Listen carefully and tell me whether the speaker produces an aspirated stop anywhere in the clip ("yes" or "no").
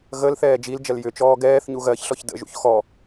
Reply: no